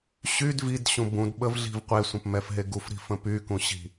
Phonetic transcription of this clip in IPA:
ɕyd vidɕũ bũdɓəvɮi̤v qʷesʷə̃pmɛfɦe ɡufɾi̤fə̃ pykũɕi̤

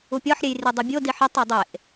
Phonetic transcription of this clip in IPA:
upʲɒħɾʲejri dˤibʲodiħ itˤo dˤeʔ

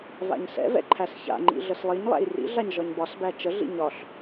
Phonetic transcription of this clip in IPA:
va̰ɲsɛ̰vɛ̰ ǃʰæsça̰ŋ͡ǃḭ ɮəslˠiɲlˠæ̰j rḭɮaɲ ʒɒɲbɒsbæ t͡ʃəɮḭ ɲɒɬ

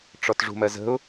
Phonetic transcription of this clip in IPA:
ʈ͡ʂɔtʐṳmɜzə̤ʊ̯

